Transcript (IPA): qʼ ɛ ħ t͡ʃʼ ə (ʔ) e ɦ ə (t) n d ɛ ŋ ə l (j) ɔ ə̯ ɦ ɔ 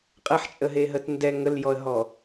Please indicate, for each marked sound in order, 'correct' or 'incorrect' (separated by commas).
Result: incorrect, correct, correct